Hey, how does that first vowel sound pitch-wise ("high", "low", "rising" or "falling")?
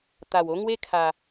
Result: low